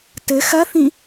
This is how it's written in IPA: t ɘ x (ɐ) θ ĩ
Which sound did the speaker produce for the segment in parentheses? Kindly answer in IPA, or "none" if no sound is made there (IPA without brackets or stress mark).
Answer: ɐ